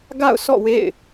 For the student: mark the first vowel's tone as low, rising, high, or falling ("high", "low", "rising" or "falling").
falling